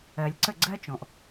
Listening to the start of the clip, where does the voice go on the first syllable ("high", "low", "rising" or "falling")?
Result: low